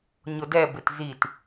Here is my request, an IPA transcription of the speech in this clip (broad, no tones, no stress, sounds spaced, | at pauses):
ɲ ʊ d ɛ b ɪ t z i t